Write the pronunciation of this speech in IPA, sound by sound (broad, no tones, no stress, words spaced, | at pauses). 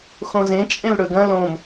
xõzẽ t͡ʃʼẽlɽɵɡɐ̃ lõm